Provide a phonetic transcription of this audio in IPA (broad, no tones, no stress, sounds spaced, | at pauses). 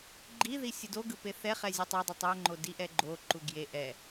ɡ͡ǃ i ð i sʲ ɯ d o ɡ ɯ p e θ ɛ χ ɛ zʲ ɯ tˤ a dˤ o tˤ e ɐ̯ ŋ͡ǃ o d i ʔ ɛ ɡ͡ǃ o ǃ u ɡ j e ʔ ɛ